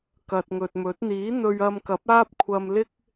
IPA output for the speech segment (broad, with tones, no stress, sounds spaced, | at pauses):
k ɐ˨ t̚ ŋ ɵ˨ t̚ m ɵ˨˥ t̚ n̪ iː˨˥ n̪ ɵ˧ ɥ ɐ˧ m k ɐ˨˥ p̚ aː˥ p̚ kʷʰ ɐ˧ m l ɪ˥ k̚